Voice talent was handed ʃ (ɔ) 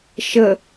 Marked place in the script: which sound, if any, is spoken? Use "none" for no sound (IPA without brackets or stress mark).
ə